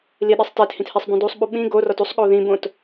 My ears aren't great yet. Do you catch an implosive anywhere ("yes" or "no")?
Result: yes